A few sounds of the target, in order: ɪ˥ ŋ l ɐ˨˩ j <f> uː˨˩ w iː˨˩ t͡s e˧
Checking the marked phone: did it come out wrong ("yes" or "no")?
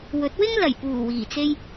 yes